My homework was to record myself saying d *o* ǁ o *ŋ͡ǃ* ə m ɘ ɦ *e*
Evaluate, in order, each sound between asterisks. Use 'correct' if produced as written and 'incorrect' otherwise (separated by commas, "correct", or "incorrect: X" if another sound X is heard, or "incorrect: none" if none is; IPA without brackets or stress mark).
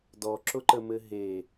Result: incorrect: ɔ, incorrect: ǃ, correct